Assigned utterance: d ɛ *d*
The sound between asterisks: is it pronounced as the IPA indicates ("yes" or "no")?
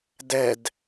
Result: yes